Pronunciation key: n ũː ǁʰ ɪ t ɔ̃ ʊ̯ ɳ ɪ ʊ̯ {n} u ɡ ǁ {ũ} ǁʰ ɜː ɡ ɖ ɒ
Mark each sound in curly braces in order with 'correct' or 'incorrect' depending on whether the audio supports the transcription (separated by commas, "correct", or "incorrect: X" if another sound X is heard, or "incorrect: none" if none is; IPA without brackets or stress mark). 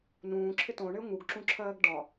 incorrect: ŋ, correct